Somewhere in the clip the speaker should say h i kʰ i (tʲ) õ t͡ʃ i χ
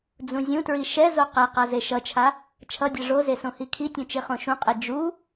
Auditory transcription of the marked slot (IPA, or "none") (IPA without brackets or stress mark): tʲ